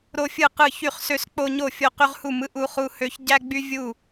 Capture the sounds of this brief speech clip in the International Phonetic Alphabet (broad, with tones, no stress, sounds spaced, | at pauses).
ɾ o˦ fʲ ɯ˥˩ q ɯ˥˩ ç y˥˩ χ s ø˦ s k͡p o˦ ɲ o˥˩ fʲ o˦ q y˦ ʁ h u˥˩ m ɯ˦ ʔ u˦ χ u˦ h ø˦ ç ɟ æ˦ ɡ͡b y˦ vʲ u˥˩